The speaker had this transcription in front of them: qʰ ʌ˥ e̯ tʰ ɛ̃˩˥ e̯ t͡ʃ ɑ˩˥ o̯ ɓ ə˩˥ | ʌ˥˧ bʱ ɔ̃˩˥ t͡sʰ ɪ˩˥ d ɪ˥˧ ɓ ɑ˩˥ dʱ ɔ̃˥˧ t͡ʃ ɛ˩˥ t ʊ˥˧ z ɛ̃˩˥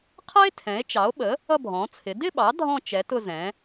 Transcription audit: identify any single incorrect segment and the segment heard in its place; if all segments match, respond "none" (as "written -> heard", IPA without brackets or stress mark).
none